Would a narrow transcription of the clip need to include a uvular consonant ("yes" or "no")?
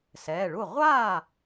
yes